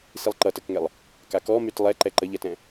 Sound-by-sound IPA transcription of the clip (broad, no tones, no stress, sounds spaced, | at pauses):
s i lˠ ǃ ʌ t ə k ŋ ɛ lˠ | k a k ɔ m y t lˠ ɛ ǃ ɛ ǃ ə ʎ ɛ t ɛ̃